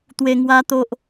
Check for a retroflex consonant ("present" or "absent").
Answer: absent